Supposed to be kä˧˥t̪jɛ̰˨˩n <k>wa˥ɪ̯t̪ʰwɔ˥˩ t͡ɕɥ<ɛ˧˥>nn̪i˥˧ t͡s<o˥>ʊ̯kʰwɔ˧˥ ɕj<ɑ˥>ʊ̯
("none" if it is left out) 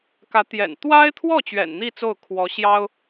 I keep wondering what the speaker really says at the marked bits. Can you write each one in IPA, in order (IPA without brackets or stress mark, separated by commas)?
t̪, ɛ̰˨˩, o˥˩, ɑ˥